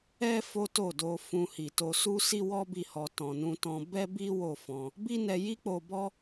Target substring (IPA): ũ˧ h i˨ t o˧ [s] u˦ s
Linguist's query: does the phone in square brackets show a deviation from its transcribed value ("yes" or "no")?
no